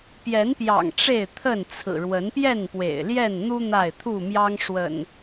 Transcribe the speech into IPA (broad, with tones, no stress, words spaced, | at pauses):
pjɛ˨˦npjɑ̰˨˩ŋ ʈ͡ʂe˥˨ɪ̯t̪ʰə˥˨nt͡sʰɹ̩˨˩ ɻwə˨˦npjɛ˥˨npwḛ˨˩ɪ̯ ljɛ˥˨nn̪u˦ n̪a˥˨ɪ̯t̪ʰu˥˨mjɑ˦ŋ ʂwə̰˨˩n